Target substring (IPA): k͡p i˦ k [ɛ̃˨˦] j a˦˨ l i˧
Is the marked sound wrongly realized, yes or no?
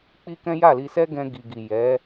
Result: yes